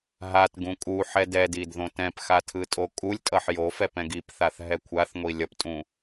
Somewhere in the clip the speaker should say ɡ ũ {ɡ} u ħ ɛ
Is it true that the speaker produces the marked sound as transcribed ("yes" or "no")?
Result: no